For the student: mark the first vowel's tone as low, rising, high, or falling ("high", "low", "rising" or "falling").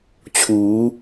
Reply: rising